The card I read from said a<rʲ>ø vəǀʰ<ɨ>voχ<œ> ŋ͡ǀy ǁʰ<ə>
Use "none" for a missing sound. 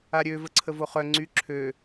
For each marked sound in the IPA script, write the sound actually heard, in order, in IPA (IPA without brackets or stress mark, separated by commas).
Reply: ɾʲ, ə, œ, ø